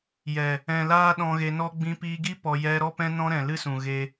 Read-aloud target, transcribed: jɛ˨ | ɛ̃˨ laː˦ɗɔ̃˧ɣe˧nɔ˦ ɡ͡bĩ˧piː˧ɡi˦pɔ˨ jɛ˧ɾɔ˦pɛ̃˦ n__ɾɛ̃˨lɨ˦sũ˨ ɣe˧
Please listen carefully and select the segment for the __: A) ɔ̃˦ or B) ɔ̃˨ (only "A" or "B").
A